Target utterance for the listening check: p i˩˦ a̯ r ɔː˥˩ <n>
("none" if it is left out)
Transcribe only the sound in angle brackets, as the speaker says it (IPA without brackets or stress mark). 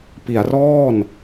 n